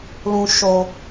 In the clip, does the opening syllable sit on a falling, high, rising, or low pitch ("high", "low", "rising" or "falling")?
low